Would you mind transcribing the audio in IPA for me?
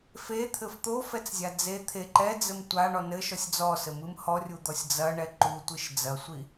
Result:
f e t̪ʰ ɘ f t̪ o f ɛ t͡s zʲ a d͡z e t̪ʰ e ǃ ɛ d͡z ɘ m tʷ a ɳ ɔ n ɘ ʃ ɔ sʲ d͡z ɔ s ɘ m ɨ m h ɔ rʲ u d̪ ɔ sʲ d͡z ɐ ɳ ɛ ǃ u tʷ ɨ ʃ d͡z ɐ sʷ i

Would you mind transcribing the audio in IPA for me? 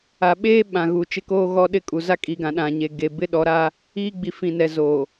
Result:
a˨ ɓ eː˦ ɓ ã˨ ɣ u˨ t͡ʃ ɪ˦ k oː˦ ɣ ɔ˦ ɗ ɪ˦ kʼ u˨ z a˦ kʼ i˨ ɡ ã˨ ɗ ã˨ ɲ e˨ ɡ e˨ b ɪ˦ ɗ ɔ˨˦ ɾ a˦ | iː˦ ɡ͡b i˨ f ĩ˨ n ɛ˨ z o˨

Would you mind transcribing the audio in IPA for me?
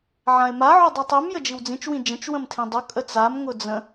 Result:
ʕ ã ɪ̯ m a ʕ ʊ dˤ i tˤ i m j ə d͡ʒ i w d͡z ĩ t͡ʃ w ĩ d͡ʒ ə̃ t͡ʃ w ə̃ m tʰ ĩ dˤ ʊ kʼ ə t͡s a m ŋ ʊ d͡z ə̃

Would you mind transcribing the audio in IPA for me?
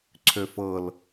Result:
ǀʰ ø f ɤ l

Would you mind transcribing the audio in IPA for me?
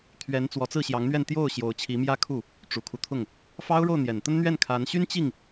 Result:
t̪ʰ ɥ ɛ˧˥ n t͡s w ɔ˧˥ t͡s ɹ̩˥˩ ɕ j ɑ˧˥ ŋ n̪ ɥ ɛ˥˧ n t̪ j o˥˩ ʊ̯ ɕ j o˧˥ ʊ̯ t͡ɕʰ i˧˥ m j ä˥˧ kʰ u˥˩ | ʈ͡ʂ u˨˩ kʰ u˦ t̪ʰ ʊ˥˩ ŋ | f ɑ˥ ʊ̯ ɻ o˥˩ ʊ̯ n̪ j ɛ˨˩ n t̪ ə˥ n n̪ ɥ ɛ˥˩ n kʰ a˧˥ n ɕ y˥ n t͡ɕ i˥˩ ŋ

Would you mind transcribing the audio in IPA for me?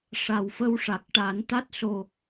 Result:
ʂ a˨˩ w f ə˧ w ʂ a˨˩ k̚ ʈ a˨˩˦ n t̪ a˦˥ t̚ s o˨˩

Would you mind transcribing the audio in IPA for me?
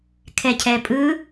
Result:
kʰ ɛ cʰ ɛ pʼ ɯ

